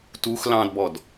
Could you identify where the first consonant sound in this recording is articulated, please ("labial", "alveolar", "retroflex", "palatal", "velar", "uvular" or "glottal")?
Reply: alveolar